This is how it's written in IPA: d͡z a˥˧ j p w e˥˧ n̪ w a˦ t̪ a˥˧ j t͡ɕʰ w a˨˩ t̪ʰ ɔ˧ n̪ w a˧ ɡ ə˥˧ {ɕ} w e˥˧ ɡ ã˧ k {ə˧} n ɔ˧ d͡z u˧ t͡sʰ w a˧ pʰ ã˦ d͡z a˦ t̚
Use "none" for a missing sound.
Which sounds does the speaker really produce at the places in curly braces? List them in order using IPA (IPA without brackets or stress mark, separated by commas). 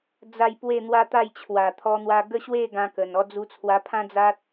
ɕ, ə˨˩